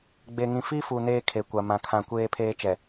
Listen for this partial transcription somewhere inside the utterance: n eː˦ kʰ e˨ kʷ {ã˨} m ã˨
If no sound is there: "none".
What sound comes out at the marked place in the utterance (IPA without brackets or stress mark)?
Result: a˨